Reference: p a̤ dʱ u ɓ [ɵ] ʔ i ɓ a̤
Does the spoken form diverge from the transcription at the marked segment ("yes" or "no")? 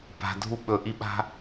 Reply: no